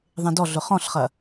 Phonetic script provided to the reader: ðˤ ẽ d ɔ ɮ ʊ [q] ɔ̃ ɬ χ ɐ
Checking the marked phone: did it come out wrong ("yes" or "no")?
yes